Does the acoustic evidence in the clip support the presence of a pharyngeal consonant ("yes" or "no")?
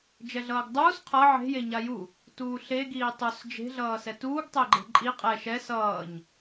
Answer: yes